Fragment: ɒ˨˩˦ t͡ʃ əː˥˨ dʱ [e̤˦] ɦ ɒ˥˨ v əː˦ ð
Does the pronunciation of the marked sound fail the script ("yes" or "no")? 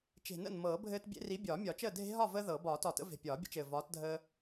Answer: no